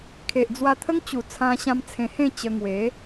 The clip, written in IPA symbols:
kʰe˨ʔd͡zwa˧ t̪ʰə˦ŋt͡ɕu˨˩ t͡sʰã˧ɕã˧mt͡sʰẽ˧hẽ˥˧ t͡ɕə˧ŋwe˨˦

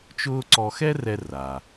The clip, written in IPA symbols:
t͡ʃʊː˥ ǀɔ˧xɛ˥rɛ˧ ra˩

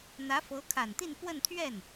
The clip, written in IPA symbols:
n̪ä˧˥fɤ˧˥kʰa˨˩nt̪i˥˧n pwə˥˧nt̪ʰɥɛ˥˩n

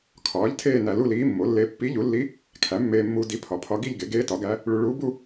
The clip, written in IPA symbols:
kʰɒː˩˥ʎ tʰeː˥˧næ˧lu˥˧liː˧˥ mːo˩˥lːe˧˥ pːi˧˥ʎu˩˥lːi˧˥ | kʰæ˩˥mːeː˧mːuː˧ di˧˥pʰɒ˩˥ pʰɒ˧˥ɡi˥˧ʎɡe˩˥ ɡeː˧˥tɒ˩˥ɡæ˧˥ | ɭu˧ ɭuː˧˥bu˥˧

